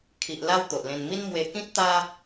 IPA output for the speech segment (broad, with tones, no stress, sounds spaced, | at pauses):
kʰ i˨ ʔ l a˦ w t̪ o˨ ʔ l ẽ˧ n m i˦ n m w e˧ k ĩ˦ t̚ t̪ a˦